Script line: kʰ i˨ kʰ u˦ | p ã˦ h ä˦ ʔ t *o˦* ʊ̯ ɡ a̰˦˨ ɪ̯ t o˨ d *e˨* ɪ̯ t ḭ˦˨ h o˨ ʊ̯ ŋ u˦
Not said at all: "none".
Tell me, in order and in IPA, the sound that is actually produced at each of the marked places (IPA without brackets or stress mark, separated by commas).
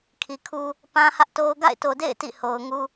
o˦, ḛ˦˨